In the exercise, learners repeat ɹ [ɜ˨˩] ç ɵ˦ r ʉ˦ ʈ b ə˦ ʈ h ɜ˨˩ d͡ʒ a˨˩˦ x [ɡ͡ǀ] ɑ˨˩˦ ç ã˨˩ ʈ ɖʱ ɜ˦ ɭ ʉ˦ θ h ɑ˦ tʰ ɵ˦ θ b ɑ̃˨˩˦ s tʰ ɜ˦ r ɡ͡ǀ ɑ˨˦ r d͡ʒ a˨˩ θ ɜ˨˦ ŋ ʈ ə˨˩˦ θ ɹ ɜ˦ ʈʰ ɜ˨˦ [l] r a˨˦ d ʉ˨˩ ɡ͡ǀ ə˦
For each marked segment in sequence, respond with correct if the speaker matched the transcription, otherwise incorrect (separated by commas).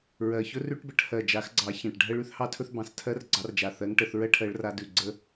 correct, correct, incorrect